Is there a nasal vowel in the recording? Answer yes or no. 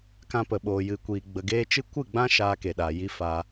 yes